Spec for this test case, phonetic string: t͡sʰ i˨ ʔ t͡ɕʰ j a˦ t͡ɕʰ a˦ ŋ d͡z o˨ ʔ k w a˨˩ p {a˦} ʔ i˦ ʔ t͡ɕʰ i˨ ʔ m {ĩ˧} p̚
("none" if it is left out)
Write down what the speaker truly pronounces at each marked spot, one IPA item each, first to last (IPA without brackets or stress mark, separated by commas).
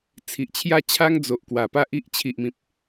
a˦, ĩ˨